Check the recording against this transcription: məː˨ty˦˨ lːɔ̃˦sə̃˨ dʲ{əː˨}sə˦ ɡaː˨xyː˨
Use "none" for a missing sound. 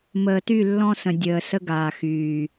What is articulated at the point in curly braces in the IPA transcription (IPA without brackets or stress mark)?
əː˨